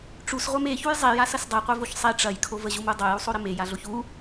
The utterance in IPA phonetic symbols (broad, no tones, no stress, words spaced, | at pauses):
ʈ͡ʂusʁʷem eçuj zˤejasɐs dˤeqʷevoç sˤe ʈ͡ʂɐjkʰov əʑumu dˤojusˤoɾə mejaɮoç u